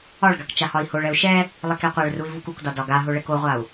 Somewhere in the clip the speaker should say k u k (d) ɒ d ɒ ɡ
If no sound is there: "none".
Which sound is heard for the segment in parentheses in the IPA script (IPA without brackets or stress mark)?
d